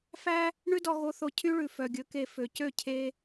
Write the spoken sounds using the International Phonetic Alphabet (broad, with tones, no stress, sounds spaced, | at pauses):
f æ˦ | ɳ ʉ˦ d ɔ˧ ɣ o˧ θ o˧ cʰ y˦ ɭ ʉ˨ f œ˨ ɡʲ ɵ˨˦ k e˧ f ø˨ c ø˦˨ cʰ e˦